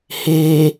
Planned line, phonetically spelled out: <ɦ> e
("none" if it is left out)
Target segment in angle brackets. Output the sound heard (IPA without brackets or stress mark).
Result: h